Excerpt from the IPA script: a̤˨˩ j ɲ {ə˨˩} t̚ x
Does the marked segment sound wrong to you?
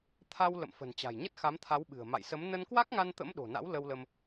yes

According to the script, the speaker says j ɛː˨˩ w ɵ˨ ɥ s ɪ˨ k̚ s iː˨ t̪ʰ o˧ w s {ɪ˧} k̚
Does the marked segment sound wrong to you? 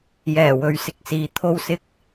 no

